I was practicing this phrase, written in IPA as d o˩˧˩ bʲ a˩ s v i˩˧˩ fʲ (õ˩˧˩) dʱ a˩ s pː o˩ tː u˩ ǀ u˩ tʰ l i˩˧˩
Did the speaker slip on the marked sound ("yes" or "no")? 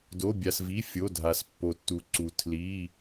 yes